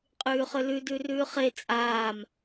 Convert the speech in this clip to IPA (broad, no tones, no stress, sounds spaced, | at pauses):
qʼ ʉː χ ø l ʉ d ʉ r ʉː χ e t͡sʼ aː m